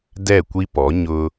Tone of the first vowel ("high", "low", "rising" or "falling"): falling